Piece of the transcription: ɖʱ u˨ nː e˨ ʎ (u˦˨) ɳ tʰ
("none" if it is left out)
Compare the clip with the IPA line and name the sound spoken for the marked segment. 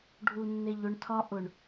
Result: ʊ˦˨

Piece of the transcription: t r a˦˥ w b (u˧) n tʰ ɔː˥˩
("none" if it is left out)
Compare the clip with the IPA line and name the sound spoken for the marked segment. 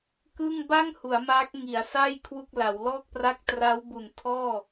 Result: u˨˩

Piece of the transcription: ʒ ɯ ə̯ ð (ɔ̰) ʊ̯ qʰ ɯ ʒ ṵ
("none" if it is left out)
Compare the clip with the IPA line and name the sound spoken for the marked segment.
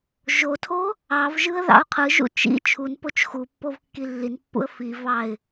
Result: ɑ̰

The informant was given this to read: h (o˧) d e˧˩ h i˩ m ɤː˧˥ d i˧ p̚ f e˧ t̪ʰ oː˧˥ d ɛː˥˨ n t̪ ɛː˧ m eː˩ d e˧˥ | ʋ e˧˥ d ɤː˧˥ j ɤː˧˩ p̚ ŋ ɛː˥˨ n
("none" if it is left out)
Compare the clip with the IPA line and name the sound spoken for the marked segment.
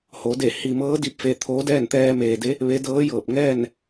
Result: o˩˧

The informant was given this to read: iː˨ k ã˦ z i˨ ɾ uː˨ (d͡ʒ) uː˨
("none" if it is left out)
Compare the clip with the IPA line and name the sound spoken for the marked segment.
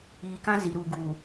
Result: ɡ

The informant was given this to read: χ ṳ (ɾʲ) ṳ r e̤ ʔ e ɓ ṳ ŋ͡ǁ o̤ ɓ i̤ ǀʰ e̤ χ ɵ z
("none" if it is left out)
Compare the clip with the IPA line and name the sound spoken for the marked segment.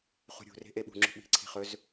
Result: ɾʲ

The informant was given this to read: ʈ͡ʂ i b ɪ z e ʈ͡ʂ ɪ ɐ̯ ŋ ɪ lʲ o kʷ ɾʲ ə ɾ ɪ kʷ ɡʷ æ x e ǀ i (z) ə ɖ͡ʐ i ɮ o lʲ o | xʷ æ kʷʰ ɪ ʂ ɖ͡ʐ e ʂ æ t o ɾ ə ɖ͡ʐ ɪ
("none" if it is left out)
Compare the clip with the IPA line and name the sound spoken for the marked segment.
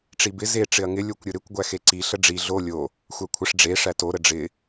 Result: ɬ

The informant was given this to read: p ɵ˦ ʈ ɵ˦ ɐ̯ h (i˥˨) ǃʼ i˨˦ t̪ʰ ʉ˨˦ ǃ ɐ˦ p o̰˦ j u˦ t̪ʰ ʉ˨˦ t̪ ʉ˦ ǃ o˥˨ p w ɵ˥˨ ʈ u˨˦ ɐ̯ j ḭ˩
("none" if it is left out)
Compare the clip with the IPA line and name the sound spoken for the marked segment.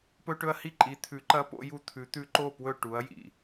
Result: i˥˨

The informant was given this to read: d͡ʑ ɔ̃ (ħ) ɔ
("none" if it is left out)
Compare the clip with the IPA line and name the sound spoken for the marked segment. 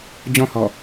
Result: h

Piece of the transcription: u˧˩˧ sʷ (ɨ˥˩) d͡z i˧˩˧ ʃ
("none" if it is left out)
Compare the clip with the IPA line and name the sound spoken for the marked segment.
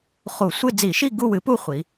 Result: ɨ˥˧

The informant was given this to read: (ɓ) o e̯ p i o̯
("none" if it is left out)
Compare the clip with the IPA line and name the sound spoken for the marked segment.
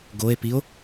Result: ɡ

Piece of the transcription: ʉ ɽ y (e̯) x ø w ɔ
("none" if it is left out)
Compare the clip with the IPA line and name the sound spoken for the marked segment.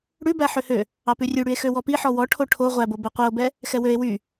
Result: e̯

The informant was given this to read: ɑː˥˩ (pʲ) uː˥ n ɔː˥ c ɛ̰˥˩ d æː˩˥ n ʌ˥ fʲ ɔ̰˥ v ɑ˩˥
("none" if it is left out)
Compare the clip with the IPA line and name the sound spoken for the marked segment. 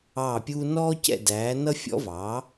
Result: pʲ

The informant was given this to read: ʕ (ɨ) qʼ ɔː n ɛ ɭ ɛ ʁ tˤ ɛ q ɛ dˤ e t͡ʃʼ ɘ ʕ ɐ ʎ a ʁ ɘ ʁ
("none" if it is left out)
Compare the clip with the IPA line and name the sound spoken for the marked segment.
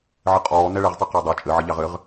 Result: ɨ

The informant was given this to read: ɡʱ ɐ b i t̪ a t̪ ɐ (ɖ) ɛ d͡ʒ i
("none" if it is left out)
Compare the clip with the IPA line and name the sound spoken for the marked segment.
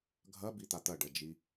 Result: ɖ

